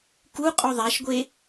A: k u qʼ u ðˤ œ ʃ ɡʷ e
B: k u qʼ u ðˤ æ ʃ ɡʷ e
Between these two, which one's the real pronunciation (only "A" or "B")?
B